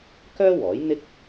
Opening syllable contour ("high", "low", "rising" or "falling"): high